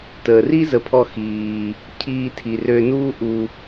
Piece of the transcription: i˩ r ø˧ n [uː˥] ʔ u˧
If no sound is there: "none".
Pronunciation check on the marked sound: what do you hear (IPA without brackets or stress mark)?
uː˥